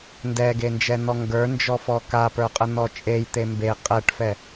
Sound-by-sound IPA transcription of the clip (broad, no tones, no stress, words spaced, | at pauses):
ndɛɡend͡ʒɛn̪ɔ ŋɡə˞nd͡ʒɔfɔ kapə˞qʼən̪ɔ t͡ʃʼejt̪e mbe qʼɛʈfɛ